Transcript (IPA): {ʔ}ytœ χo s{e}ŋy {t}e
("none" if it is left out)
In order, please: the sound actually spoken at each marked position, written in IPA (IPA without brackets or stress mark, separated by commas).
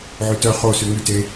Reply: ʕ, y, t